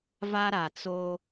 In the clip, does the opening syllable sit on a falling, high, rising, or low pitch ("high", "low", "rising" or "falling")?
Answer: high